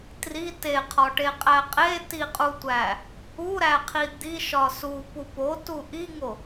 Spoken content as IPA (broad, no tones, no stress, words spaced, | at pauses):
tri teqʰɒʈeqʼæ qʼetiqʼutʷæ | uɾæqʰi d̪iʃɒ supu potu ʔiŋo